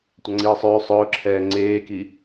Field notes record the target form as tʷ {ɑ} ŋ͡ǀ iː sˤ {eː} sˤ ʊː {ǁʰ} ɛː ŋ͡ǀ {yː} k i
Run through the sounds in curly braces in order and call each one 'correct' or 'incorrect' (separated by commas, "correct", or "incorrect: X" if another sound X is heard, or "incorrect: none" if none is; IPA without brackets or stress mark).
correct, incorrect: øː, correct, incorrect: eː